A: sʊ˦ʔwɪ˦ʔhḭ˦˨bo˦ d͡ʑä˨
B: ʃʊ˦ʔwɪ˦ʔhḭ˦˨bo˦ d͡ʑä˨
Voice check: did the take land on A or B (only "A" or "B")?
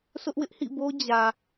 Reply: A